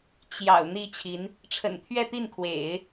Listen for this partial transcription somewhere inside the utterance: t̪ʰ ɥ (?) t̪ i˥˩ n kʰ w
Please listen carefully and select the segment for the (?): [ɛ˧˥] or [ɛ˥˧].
ɛ˥˧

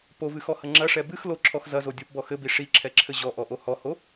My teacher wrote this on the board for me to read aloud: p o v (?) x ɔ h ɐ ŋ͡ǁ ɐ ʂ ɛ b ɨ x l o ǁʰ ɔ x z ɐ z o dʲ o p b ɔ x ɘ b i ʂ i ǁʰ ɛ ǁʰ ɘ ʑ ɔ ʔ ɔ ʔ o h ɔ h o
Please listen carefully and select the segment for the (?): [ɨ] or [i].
ɨ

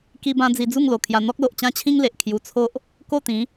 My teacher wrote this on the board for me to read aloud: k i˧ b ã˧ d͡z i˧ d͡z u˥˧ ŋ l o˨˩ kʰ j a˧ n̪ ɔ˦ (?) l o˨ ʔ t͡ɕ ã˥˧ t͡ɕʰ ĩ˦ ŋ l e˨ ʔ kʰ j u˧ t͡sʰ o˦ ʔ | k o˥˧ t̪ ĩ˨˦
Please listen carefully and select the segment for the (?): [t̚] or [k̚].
k̚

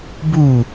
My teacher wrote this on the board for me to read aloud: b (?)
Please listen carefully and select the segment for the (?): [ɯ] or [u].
u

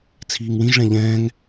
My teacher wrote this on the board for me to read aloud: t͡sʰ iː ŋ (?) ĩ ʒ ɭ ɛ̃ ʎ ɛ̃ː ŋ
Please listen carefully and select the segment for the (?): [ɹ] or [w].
w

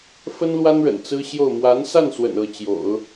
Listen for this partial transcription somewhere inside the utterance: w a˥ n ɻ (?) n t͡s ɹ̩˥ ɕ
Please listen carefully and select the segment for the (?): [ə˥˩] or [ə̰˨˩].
ə̰˨˩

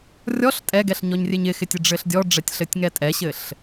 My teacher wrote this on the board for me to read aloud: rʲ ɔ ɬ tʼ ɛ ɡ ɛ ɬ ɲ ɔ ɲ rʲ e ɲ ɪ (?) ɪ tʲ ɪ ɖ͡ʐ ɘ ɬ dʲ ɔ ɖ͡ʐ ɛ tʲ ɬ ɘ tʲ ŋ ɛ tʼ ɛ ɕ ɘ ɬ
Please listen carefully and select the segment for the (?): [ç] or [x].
x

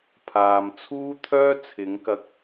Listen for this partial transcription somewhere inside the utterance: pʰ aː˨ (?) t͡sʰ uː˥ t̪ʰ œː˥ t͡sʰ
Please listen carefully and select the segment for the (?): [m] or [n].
m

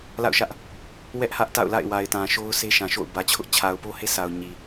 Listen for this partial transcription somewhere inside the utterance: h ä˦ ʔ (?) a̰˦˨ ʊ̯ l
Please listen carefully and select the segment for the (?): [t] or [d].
t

